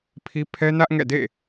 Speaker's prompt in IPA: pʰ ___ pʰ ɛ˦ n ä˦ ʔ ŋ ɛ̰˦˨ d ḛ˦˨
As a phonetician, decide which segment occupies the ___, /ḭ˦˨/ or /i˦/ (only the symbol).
i˦